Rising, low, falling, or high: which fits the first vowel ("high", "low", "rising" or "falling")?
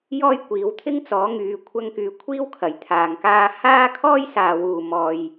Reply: high